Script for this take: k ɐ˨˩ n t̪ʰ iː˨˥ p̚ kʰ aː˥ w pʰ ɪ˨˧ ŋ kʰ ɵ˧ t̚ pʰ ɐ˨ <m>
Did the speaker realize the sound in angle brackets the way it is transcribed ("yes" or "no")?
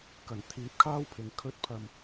yes